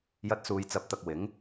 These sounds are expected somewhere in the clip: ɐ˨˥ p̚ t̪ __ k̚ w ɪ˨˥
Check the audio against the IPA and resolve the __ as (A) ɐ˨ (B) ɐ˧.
A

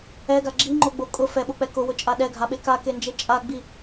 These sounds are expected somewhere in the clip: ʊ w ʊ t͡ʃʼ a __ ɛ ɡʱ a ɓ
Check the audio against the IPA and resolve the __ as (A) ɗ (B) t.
A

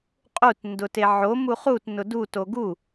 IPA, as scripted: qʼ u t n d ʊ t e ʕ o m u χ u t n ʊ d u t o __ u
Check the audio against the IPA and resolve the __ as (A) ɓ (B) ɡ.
B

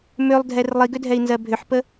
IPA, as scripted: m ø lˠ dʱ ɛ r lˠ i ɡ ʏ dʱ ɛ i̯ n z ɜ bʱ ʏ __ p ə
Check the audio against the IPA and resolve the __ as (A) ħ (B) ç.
A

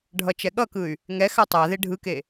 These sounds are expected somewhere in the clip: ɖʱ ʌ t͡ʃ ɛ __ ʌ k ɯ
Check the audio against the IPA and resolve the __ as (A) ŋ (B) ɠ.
B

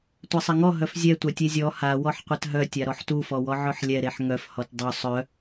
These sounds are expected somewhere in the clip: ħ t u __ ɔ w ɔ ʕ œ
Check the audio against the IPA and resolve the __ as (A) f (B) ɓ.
A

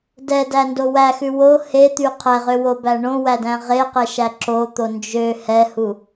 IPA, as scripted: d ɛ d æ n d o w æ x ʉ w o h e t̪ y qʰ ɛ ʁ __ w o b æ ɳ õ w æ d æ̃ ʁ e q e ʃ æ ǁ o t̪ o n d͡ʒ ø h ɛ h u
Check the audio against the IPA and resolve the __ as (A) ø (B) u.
A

